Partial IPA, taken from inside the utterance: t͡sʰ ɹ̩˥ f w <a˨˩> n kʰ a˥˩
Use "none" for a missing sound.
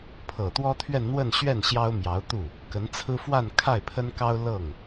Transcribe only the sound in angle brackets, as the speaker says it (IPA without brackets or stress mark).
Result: a˥˧